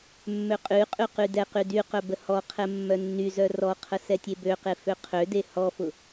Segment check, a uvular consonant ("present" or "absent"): present